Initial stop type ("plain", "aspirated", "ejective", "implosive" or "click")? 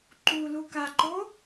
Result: click